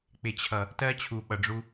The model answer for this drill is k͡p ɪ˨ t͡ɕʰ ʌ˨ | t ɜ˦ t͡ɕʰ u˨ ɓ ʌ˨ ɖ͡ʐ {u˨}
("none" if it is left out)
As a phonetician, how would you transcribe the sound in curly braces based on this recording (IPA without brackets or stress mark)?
u˦